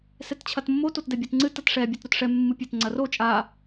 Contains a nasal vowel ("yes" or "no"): no